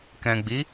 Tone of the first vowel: low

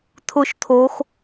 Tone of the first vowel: low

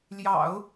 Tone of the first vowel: low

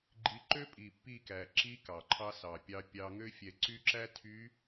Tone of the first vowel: rising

